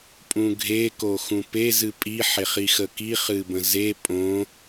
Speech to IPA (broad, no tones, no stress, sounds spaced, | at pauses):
pʼ ũ ɡʱ e k o x ũ p e z ɨ pʼ i ħ e χ i x ə k i χ ɨ b ə̃ z e pʼ õ